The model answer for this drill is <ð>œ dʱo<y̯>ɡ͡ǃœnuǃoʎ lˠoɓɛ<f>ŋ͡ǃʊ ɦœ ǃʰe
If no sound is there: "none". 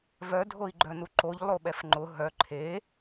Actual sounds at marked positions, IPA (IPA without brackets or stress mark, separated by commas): v, i̯, f